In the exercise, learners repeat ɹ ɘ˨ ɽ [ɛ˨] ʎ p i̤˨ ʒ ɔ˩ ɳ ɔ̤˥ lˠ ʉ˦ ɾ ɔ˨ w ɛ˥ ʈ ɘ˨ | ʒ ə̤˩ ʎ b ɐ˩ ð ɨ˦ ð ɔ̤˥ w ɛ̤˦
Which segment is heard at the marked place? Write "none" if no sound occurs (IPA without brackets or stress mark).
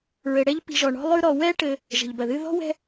ɛ˦